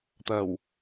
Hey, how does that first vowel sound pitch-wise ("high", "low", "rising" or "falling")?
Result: low